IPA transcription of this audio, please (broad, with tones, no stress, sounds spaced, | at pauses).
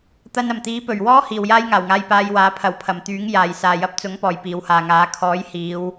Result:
t̪ ɐ˧ n ɐ˨˩ m t̪ iː˨˥ p ɵ˨˩ ɥ w ɔː˥ h iː˨ w j aː˥ j ŋ aː˨˩ w ŋ aː˧ j p aː˧ j w aː˨˥ pʰ ɐ˨˧ w pʰ ɐ˨˩ m t̪ yː˨˥ ŋ j aː˨˩ j s aː˨ j ɐ˧ p̚ t͡s ʊ˨˥ ŋ p ɔː˨˩ j p iː˨˧ w h aː˨ ŋ aː˨˥ kʰ ɔː˨˥ j h iː˨˧ w